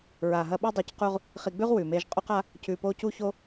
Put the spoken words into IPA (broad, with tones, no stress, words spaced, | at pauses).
ɹa˨ɦɐ˧ɓa˦ dˤi˧cqu˦ʁ | χi˧ɡ͡bʉ˦ʁ wʉ˨me˧ʒ qʼu˦qa˦ | cʉ˧po˦ cu˦ço˦